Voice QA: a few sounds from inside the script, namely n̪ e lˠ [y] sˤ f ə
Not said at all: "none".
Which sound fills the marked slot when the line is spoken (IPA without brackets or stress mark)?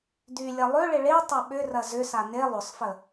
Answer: ʏ